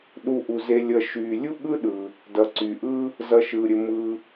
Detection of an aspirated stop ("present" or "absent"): absent